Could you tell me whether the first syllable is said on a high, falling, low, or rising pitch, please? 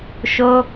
high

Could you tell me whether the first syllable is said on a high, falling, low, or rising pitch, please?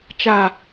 low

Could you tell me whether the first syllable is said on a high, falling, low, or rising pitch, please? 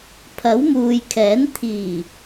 rising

